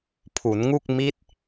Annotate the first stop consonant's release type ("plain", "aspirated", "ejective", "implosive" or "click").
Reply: aspirated